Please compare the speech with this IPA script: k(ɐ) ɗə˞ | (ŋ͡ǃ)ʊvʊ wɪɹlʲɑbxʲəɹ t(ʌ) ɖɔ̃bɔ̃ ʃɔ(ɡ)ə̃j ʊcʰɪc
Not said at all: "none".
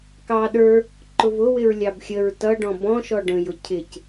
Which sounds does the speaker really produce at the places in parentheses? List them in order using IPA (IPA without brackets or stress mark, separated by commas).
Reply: ɑ, ǃ, ʌ, ɖ